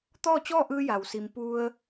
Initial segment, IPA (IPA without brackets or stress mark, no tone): t̪